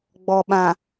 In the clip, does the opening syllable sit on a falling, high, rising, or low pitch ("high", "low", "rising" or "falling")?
low